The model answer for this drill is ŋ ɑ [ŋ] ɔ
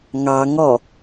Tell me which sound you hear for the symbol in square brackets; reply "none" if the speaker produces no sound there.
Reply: ŋ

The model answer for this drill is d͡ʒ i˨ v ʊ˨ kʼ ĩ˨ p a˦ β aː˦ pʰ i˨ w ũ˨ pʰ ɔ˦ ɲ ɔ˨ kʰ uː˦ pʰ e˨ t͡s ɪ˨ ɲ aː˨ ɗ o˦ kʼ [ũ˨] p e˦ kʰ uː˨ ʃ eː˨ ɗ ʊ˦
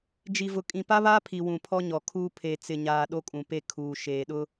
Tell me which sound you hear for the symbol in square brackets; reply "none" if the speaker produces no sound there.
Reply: ũ˨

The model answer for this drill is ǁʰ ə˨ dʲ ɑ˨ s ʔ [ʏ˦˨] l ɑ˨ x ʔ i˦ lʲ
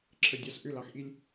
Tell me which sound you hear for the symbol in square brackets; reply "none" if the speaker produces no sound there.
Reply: ʏ˦˨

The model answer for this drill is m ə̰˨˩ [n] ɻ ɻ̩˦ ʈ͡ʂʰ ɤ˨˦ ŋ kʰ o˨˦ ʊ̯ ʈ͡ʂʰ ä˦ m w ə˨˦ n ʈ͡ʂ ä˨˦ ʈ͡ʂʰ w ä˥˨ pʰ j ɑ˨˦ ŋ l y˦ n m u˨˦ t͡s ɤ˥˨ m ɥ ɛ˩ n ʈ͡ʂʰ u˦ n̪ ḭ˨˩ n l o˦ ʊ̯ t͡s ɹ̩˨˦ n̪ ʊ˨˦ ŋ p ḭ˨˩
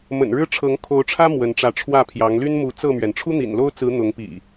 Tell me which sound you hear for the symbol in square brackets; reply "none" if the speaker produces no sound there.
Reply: n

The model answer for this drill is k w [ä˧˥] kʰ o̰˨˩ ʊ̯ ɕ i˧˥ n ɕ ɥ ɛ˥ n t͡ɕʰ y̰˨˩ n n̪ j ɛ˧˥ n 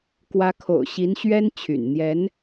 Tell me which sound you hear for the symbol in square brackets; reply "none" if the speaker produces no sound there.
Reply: ä˧˥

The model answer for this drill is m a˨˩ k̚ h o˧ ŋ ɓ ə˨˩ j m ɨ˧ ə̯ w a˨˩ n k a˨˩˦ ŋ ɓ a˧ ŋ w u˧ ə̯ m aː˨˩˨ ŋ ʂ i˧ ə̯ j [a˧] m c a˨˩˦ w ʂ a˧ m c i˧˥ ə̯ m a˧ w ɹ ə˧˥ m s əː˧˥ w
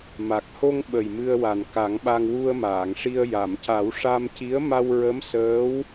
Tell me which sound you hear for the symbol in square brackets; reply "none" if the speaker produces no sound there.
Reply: a˨˩˨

